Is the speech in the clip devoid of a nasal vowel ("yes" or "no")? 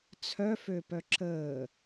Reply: yes